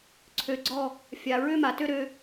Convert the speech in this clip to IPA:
ǀʰ ø˨ ɡ͡ǀ ɔ˦˨ | fʲ a˨ ɹ ø˦ m a˨ t ø˦ ɾ ø˧

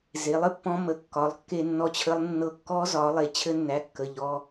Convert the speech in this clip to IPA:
z e˩˥ lˠ ɘ˩˥ pː ɔ̃˦˥ m ə˩˧˩ kː ɒ˩˥ lˠ kː e˥˧ nː ɔ˥˧ t͡ɕʰ ə˦˥ lˠ nː ɤ˦˥ kː ɔ˦˥ z ɒ˩˥ lˠ e˩˧˩ t͡ɕʰ ɘ˦˥ nː æ˩˧˩ kː ə˩˧˩ ʎ ɔ˩˧˩

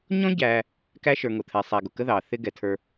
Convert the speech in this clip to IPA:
ɲ ɔ̃˥ ɟ æː˧ | k æ˥ ʃ ə˞˧ ŋ ʊ˩ t̪ʰ ɛ˩ sˤ æ˩ ɡ ʊ˩ k ə˥ ð ɑː˩ θ ɪ˥ ɡ ɛ˩ tʰ ə˞˧

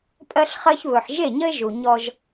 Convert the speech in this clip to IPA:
pʼ ɜ˦ ɬ χ ɜ˦ ç β ɵ˨ ħ ʒ e˦˨ ɲ ə˦ ɪ̯ ʒ u˨ ɲ ɔ˦ ʒ

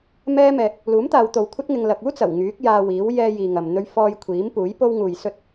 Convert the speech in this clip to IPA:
m ɛː˥ m ɛː˧ k̚ | l uː˨˥ m t̪ aː˨˧ w t̪ o˨˧ w kʷʰ ɐ˥ t̚ ŋ ɪ˧ ŋ l ɐ˨ k̚ uː˥ t͡s ɐ˨˩ w ŋ yː˨˥ k̚ j aː˧ w iː˨˥ w j ɛː˧ j iː˨ ŋ ɐ˨ m n̪ ɵ˧ ɥ f ɔː˧ j kʷʰ iː˨˥ m p uː˨˥ j p o˥ w ŋ uː˧ j s ɵ˥ t̚

